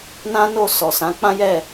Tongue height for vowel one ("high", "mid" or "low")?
low